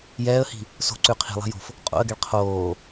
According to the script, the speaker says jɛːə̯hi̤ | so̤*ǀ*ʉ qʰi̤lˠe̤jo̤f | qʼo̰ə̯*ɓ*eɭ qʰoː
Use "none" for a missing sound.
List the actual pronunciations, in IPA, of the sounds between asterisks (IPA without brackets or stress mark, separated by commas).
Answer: ǀ, ɡ